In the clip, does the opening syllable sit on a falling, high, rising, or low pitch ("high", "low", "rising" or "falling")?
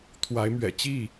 rising